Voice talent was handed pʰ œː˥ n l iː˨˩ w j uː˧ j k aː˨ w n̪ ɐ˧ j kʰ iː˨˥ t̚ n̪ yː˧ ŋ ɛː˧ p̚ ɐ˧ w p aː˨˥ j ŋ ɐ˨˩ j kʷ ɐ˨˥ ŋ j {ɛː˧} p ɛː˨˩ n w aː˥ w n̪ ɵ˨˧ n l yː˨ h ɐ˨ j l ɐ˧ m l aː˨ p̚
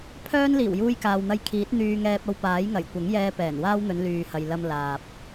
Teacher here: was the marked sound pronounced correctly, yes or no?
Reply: yes